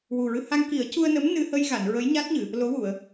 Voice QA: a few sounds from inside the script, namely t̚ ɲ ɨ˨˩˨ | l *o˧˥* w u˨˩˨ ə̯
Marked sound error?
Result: no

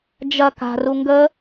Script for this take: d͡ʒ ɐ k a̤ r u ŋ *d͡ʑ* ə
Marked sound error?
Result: yes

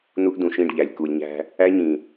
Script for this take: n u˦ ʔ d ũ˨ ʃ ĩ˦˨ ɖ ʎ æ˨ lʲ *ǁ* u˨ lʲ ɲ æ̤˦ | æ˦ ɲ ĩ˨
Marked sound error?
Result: yes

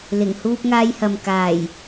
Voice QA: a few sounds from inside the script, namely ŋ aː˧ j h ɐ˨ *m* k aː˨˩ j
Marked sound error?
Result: no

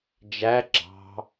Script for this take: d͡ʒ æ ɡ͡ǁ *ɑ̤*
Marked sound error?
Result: no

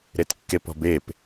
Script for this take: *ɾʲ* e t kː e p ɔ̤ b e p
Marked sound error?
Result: yes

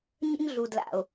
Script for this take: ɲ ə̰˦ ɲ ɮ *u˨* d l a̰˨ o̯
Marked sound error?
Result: no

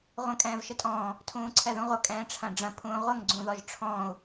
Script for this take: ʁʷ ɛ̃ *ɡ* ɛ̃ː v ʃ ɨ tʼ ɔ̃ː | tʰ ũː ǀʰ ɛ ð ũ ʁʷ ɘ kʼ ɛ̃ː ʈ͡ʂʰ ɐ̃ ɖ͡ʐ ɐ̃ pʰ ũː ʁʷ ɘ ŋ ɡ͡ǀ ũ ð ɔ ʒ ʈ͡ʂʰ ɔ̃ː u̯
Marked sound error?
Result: yes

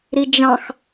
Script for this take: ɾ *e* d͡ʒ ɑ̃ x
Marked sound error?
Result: yes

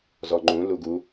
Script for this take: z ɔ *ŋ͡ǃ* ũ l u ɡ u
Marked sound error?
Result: no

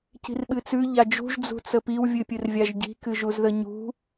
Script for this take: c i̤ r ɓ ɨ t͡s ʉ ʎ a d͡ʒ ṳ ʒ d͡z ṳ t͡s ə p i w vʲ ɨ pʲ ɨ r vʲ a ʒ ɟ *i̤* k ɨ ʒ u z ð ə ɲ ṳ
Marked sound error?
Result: no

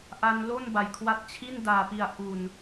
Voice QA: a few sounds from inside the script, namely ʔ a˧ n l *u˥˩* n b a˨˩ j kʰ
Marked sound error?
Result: yes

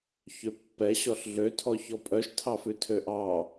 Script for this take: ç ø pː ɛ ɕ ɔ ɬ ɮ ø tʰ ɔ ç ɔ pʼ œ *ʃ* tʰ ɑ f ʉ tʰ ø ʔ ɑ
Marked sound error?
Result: no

